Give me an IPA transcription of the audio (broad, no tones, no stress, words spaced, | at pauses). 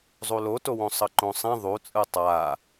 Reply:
zˤulotowõ sˤʌǃõsˤĩ ðˤut͡sʼɯ tˤa